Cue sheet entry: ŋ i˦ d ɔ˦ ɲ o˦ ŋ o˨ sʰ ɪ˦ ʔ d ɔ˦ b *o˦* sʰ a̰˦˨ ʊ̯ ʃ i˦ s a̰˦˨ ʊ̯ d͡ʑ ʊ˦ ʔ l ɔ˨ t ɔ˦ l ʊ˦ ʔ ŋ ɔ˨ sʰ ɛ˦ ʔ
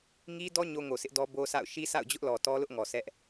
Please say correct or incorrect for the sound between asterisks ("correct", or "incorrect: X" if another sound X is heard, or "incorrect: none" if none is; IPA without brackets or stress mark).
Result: correct